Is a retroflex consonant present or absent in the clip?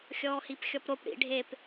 present